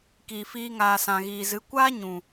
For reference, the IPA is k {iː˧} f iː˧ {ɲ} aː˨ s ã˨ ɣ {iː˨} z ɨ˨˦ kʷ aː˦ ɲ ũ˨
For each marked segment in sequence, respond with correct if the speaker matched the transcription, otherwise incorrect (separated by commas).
incorrect, incorrect, correct